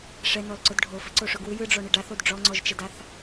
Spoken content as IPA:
ʂ ɛ n ɔ l ǀ ʊ d ɖʱ o f ɘ ǀ o ʂ ʊ ɡ w ɯ j ɯ ɖ͡ʐ ɔ ɳ ɘ ɖ a θ o d ɖ͡ʐ ɔ ŋ͡ǀ ɔ ʒ t͡ʃ ɛ d a θ

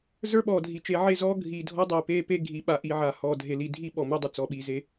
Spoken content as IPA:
z ə˞˦ ɓ ɔː˨ dʱ i˨ t͡ʃ e˨ ʕ e˦˨ z ɔː˦ ɡʱ iː˨ dʱ ɔ˦ dˤ iː˨ p eː˦ p e˦ ɡʱ i˨˦ ɓ a˨ ʔ iː˨ ʕ a˨ h ɔː˨ dʱ e˨ l i˨ dʱ i˦ ɓ ɔ˨ m e˦ dˤ ɪ˨ t͡s ɔ˨ ɓ iː˨ z e˦

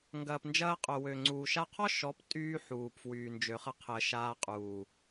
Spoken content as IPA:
ŋ ɡ ɐː˨ p n d͡ʒ ɐː˧ qʼ œ˨ w ø˨ ŋ͡ǀ uː˨ ʃ a˧ qʰ ɔ˦ ʃ ɔ˨˦ p tʼ yː˦ ħ uː˨ p f w yː˨ n d͡ʒ ø˨ χ ɐ˧ qʰ əː˨ ʃ aː˧ qʼ uː˨

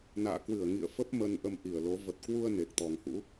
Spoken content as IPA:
n a̰ː˧˨ k w ɨ˧˩ ə̯ ŋ ḭ˧˨ ə̯ f ə˦˥ p̚ m ə˧ n ʔ ə˧ m ʔ i˧˩ ə̯ l o˨˦ v ə˨˩ t̚ k w u˧ ə̯ n e˨˩ k̚ t̪ ɔ˨˩ ŋ h ṵ˧˥

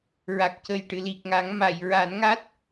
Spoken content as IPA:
ɹ a˨˩ k̚ c ə˨˩ j ʈ ɨ˨˩˨ l i˨˩ k̚ ŋ a˨˩˦ ŋ m a˨˩˨ j ɹ a˨˩˦ n ŋ a˦˥ t̚

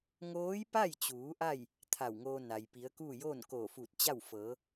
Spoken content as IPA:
ŋ oː˧˥ j p a˥˨ j t͡ɕ uː˩˧ ʔ a˥˨ j | t̪ʰ a˧˩ w ŋ oː˧ n a˩ j p i˩˧ ə̯ k uː˥˨ j oː˥˨ n k oː˧˩ f uː˧˩ t̚ t͡ɕ a˥˨ w f ɤː˩˧

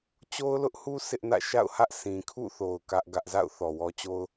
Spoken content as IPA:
t͡ɕ o˦ ʊ̯ l ʊ˦ ʔ h u˦ s ɪ˦ ʔ n ä̰˦˨ ʃ a̰˦˨ ʊ̯ h ä˦ ʔ s ĩ˨ kʰ ṵ˦˨ θ o˨ ʊ̯ k ä˦ ʔ ɡ ä˦ ʔ z a̰˦˨ ʊ̯ θ ɔ˨ w ɔ˦ t͡ɕ o˦ ʊ̯

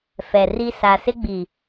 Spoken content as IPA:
f ɛ˨ r i˦ s a˨ s ɪ˦ ɡ͡b i˨

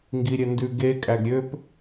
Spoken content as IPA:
ŋ ɡ i ɾʲ ɛ n d ʉ ɡ e kʼ æ ɡ ɾʲ ø p

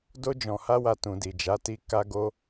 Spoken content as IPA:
d o˧ d͡ʒ ɔ̃˨ h a˧ w a˨ t ũ˨ d i˨ d͡ʒ a˨˦ t i˧ k a˧ ɡ o˧

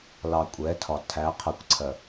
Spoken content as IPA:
l ɑ˨ kʷʼ ɛ˨˦ tʰ ɒ˨ tʰ æ˨˦ qʰ ɜ˨ kʷ ǀʰ ɜ˨

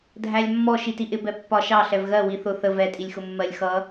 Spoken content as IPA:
dʱ æ lʲ mː ɔ ʃ i t i ʔ ɪ b ɛ pː ɒ ʃ ɑ ɬ ɛ v ɣ ɜ w i θ ʊ θ ə v ɛ tʼ i lʲ x ʊ mː ɜ lʲ x ʌ

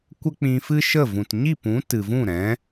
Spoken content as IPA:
kʷ ə˦ k͡p ĩ˧ f ɨ˦ ʃ ə˦˨ v ũ˨ t ɲ i˦˨ p ũ˨˦ t ɨ˨ v ũ˦˨ ɾ ɛ̃˨˦

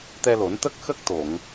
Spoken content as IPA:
t̪ ɛ˧ l o˨˩˦ n t̪ ə˦˥ k̚ x ə˦˥ k̚ t̪ o˨˩˨ ŋ

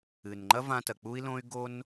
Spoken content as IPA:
ɨ˩ n ŋ͡ǃ ɐ˥ v ã˧ t ɐ˩ k͡p u˥ i̯ l õ˥ y̯ ɡ o˥ n

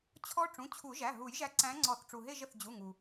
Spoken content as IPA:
t͡ɕʰ ɔ˦˥ ʈ͡ʂ ũ˩˧˩ t͡ɕʰ u˨˩˦ ʒ æ˩˧˩ ɦ u˨˩˦ j ʒ æ˨˦ ǀ æ̃˨˦ ŋ͡ǀ ɔ˨˩˦ θ ʈ͡ʂ u˩ ɦ e˦˨ ʒ ə˩ θ d͡ʑ u˩˧˩ ŋ u˩

